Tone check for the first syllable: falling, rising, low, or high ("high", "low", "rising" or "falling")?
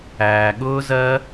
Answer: low